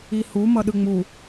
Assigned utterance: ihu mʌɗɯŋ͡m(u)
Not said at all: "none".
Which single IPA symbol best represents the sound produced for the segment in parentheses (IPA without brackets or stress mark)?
u